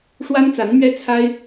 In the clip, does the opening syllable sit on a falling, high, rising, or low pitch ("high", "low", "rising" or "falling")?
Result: high